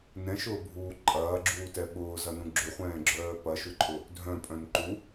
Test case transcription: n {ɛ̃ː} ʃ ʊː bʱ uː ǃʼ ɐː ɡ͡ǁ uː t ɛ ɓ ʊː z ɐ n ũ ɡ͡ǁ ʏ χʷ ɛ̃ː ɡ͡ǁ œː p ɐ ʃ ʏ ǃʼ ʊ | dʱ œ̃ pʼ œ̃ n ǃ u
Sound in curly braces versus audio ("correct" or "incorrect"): incorrect